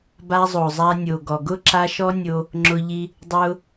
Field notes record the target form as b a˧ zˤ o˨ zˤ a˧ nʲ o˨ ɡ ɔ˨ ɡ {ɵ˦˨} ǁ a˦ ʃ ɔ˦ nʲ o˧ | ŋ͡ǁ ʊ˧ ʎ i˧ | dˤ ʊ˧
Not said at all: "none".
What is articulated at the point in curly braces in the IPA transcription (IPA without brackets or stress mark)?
ʊ˦˨